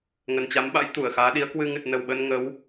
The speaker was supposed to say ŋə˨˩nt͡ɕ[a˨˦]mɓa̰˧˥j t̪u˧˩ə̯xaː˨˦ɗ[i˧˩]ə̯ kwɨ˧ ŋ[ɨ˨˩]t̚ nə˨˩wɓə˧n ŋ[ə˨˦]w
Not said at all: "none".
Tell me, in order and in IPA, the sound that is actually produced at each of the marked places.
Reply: a˨˦, i˨˦, ɨ˨˩, ə˨˦

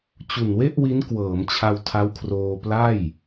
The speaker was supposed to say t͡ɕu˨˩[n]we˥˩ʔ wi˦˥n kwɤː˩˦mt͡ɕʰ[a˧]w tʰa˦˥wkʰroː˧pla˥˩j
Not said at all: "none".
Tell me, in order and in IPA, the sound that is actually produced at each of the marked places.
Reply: n, a˧

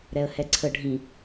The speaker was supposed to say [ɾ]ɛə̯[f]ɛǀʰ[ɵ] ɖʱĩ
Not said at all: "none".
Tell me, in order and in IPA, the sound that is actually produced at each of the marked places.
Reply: ɾ, h, ə

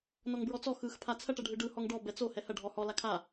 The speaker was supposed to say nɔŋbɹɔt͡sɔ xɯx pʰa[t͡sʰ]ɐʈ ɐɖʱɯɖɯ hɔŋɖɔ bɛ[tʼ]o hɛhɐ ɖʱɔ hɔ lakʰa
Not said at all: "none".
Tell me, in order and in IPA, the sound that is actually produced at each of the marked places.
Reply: t͡sʰ, t͡s

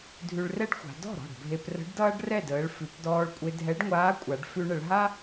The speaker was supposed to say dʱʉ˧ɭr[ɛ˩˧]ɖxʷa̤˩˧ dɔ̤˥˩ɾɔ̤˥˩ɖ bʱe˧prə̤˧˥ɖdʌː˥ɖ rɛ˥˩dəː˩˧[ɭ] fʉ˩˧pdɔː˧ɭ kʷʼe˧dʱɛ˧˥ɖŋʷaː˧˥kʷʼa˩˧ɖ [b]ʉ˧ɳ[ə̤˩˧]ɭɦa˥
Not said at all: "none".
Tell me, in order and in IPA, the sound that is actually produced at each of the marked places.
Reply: ɛ˥, ɭ, f, ə˩˧

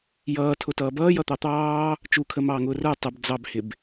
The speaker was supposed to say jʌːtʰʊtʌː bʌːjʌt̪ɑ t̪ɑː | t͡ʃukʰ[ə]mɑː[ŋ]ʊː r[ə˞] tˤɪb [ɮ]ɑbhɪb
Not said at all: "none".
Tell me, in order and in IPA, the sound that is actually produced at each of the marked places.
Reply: ə, ŋ, ə˞, d͡z

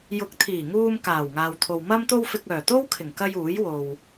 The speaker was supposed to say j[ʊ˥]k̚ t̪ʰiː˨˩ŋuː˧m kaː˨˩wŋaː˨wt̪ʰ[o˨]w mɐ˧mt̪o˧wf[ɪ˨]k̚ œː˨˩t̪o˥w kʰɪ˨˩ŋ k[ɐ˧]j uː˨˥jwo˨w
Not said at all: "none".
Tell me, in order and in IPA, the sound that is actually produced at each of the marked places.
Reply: ʊ˨˥, o˨, ɪ˨, ɐ˧

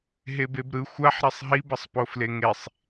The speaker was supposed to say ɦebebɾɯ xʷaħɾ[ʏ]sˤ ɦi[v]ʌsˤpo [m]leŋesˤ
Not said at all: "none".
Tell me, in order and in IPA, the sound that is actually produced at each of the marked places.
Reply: ɛ, b, f

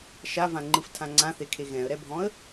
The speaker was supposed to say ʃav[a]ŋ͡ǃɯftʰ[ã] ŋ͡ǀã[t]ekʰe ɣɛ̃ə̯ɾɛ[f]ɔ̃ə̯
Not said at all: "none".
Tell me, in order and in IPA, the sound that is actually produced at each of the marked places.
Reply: ã, ã, θ, bʱ

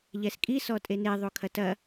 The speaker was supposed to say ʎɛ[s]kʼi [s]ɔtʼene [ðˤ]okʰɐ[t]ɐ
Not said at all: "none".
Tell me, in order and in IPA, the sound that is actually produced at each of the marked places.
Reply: s, s, ðˤ, t

